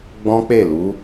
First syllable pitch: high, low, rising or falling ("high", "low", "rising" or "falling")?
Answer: high